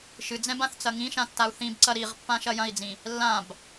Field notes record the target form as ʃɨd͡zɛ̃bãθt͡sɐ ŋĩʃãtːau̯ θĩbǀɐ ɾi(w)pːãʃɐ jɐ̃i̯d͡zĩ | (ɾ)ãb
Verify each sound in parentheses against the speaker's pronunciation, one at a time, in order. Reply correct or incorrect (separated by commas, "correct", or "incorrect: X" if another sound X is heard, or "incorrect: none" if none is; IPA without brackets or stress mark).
incorrect: ʁ, incorrect: lː